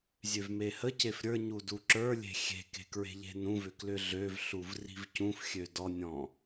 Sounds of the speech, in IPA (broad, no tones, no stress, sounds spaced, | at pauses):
zʲ ø v m e h ə c e f ɾʲ ə˞ ɲ u d u ǁ ə˞ lʲ e̤ xʲ e̤ k e̤ k ɹ e̤ ʎ e̤ n ũ v ʏ k l ʏ ɮ ø v ɬ u v r i̤ v c ũ f xʲ ø d ɔ nʲ ɔ̃